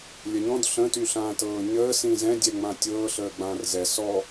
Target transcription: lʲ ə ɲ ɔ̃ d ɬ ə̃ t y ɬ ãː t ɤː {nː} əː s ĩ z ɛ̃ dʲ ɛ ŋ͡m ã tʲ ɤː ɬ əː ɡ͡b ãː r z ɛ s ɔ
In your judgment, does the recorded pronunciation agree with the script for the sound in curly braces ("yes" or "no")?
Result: no